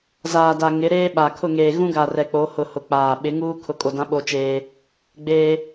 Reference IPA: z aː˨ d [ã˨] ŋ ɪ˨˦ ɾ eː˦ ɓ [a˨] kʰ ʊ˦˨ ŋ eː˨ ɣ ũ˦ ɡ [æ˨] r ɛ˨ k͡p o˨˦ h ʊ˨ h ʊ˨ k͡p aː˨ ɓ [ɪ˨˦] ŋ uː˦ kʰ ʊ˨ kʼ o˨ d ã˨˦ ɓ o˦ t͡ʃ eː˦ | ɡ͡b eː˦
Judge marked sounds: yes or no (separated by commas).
no, yes, no, yes